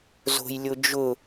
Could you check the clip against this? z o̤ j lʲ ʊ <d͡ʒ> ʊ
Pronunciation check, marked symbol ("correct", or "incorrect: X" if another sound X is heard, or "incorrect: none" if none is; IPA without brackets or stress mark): correct